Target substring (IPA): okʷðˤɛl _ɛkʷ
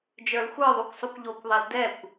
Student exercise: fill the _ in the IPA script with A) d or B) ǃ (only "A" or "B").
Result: A